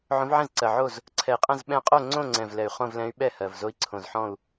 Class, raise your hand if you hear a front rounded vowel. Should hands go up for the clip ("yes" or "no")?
yes